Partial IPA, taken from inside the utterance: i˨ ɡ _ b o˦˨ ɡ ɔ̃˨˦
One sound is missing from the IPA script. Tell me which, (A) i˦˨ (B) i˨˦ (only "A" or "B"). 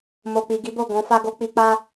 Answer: B